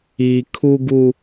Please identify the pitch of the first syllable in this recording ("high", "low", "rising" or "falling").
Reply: high